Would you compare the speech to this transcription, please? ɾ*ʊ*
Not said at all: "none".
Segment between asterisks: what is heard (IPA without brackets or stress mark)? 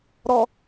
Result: ɔ